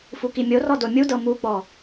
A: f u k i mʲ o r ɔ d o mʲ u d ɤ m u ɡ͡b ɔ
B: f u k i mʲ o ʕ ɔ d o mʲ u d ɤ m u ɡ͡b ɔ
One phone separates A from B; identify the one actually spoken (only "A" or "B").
A